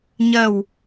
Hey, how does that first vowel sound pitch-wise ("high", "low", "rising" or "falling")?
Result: falling